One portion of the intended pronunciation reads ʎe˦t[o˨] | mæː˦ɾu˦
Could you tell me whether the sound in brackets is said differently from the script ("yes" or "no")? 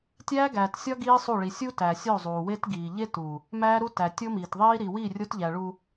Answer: yes